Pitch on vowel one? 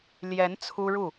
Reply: rising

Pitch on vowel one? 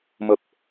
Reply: low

